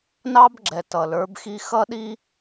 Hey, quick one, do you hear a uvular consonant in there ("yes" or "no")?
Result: no